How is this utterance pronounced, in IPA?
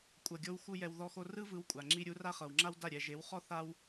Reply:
kʷʼ ɤ˨ ɡʲ o˧ w x u˧ j ɛ˧ w ð ɔ˧ x o˧ r ɯ˦ v ɯ˨˦ w kʷʼ a˨ ŋ͡ǁ i˧ ɾʲ u˨˦ r a˦ χ ɤ˨ w ŋ͡ǁ a˦ w d a˦˨ ɾʲ ɛ˨ ʒ e˨˦ w χ ɔ˦ θ a˧ w

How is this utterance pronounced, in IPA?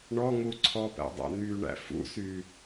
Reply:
ɳ ɔ ŋ u ǀʰ ɔ p æ̰ dˤ æ̰ n̪ y ɳ æ̰ f ṵ s y

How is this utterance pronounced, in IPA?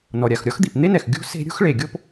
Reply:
n ɔ˩ ɾʲ a˩ x ɾʲ ɔ˥ x d̪ i˩ p n̪ e˥ n ɛ˩ x ɡʲ ṳ˥ s e̤˥ ɾʲ ṳ˥ x ɭ e˩ ɡʲ o˥ p

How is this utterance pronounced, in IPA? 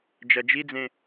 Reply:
d͡ʒ ɐ d͡ʒ i d͡z ẽ

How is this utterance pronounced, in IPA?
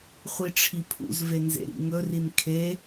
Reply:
χʷ i ʈ͡ʂʰ i pʰ ṵ z v e n z ḛ ɾ ḭ ŋ ɵ r i n kʰ e

